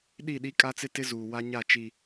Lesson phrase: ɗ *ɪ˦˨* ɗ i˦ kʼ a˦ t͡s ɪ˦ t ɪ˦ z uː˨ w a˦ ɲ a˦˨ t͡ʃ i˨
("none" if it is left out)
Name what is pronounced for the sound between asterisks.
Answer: i˦˨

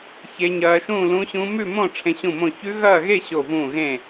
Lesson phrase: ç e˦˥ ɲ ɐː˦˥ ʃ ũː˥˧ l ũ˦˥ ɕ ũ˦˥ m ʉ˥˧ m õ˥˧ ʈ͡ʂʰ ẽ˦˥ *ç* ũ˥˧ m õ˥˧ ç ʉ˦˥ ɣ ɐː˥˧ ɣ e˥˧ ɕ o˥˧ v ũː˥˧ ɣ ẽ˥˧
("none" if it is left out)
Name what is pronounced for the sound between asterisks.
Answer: ɕ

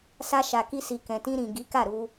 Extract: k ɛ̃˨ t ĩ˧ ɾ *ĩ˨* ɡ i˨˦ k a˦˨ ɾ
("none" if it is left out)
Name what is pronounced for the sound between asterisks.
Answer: ĩ˨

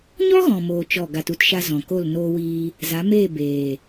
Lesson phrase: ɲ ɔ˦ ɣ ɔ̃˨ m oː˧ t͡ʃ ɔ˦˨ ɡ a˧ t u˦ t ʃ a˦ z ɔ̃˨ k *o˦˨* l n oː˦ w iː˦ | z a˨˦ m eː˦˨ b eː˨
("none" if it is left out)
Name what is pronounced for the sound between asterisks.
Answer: o˦˨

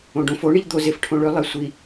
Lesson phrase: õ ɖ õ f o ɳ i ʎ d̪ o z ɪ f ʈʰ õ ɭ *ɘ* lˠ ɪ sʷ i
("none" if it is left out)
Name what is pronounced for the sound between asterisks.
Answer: ø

